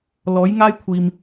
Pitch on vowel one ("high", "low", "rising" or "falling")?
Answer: rising